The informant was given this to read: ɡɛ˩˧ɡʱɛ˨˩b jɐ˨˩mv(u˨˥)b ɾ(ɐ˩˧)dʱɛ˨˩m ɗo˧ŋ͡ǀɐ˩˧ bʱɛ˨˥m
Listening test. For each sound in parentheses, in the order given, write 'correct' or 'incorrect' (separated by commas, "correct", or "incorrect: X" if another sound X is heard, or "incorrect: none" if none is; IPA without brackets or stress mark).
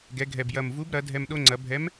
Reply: correct, correct